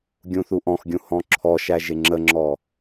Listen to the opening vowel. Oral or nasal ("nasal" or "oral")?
nasal